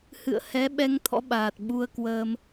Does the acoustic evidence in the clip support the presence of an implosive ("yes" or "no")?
yes